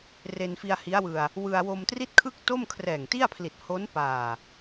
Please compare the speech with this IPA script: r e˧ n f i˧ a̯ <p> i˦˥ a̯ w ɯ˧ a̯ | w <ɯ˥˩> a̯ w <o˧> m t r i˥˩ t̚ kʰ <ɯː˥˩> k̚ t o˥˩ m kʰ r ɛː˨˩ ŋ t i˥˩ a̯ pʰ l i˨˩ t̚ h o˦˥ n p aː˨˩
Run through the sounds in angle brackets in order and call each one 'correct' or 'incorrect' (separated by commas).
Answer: incorrect, incorrect, correct, incorrect